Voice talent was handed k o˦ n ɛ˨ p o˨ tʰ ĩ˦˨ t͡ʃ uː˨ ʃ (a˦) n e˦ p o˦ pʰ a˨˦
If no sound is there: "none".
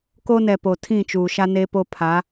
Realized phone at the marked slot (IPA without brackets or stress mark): a˦